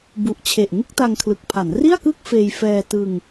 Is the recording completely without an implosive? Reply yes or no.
yes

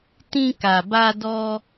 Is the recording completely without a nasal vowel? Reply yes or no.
no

